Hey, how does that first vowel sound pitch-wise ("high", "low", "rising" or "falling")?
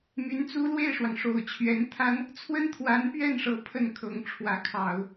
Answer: rising